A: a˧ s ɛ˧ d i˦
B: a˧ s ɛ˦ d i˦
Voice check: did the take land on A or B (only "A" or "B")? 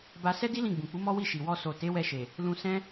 B